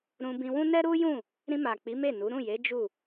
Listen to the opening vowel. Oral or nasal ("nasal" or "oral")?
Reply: nasal